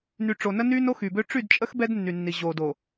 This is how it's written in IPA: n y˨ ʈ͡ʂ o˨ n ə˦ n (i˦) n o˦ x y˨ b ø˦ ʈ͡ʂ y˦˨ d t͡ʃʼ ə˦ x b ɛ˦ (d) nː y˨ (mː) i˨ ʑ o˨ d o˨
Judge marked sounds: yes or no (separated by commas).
no, yes, no